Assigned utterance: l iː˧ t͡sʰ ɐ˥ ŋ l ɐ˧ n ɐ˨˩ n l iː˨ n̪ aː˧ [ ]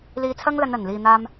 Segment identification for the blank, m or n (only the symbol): m